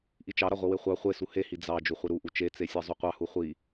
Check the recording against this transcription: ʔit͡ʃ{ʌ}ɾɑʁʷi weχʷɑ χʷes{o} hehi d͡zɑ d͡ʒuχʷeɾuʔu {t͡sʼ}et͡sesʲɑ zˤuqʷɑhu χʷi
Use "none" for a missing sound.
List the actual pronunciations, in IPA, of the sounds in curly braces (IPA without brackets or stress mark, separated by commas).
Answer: ɑ, u, t͡ʃ